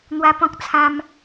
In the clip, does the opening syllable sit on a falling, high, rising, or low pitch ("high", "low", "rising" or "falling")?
high